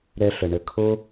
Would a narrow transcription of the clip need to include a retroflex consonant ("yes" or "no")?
yes